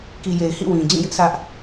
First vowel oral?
yes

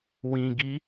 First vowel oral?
no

